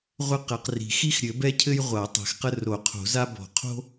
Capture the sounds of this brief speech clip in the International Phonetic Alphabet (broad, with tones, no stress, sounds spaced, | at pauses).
ʁʷ ɘ˥ q ɛ˨˩˦ q r i̤˨˩˦ x i˥ x ɾʲ ɘ˨˩˦ b ɛ˥ cʰ ɘ˥ j ʁʷ a˨˩˦ tˤ ɛ̤˨˩˦ x q ə˥ r o˨˩˦ qʰ o̤˨˩˦ z a˥ b ɔ̤˨˩˦ qʰ o̤˥